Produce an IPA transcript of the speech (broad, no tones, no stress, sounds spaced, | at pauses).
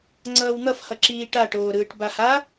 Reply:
ŋ͡ǀ ʌː w n̪ ʌ f h ʌ ǁ iː ʈ a ʈ oː ɾ ɯː ʈ b a h a